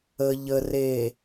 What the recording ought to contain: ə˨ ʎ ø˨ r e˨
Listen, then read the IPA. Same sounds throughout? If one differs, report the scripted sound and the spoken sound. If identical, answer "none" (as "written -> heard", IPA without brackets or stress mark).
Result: ø˨ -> ə˨